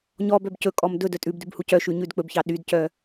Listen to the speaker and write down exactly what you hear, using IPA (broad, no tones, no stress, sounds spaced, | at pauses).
ɲ ɔ b œ b c ɵ kʼ ɔ m d ɵ d œ tʼ ʉ b d ʉ b h u c œ ʃ ʉ ɲ ʉ d k͡p ɵ b ç ɑ ɗ y d c œ